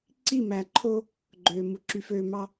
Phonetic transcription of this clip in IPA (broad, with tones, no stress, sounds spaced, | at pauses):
ǀ i˦˨ m æ˨ ǃʰ o˦ | ɡ͡ǃ øː˨ m u˨ ǁ y˨ f øː˨ m ɑ˦